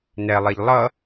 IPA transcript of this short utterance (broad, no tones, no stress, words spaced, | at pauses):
nɛlˠeʎ lˠʌ